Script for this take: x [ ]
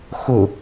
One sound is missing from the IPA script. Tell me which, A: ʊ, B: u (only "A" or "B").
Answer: A